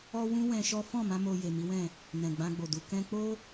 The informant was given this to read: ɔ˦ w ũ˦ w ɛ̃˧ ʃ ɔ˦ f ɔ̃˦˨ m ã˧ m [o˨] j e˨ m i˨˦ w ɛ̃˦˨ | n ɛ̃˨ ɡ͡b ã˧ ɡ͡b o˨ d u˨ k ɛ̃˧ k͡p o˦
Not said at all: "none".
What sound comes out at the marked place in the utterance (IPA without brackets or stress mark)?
o˧